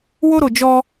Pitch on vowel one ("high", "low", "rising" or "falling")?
high